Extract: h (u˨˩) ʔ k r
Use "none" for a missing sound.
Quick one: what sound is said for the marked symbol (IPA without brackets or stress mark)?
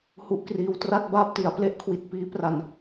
u˦˥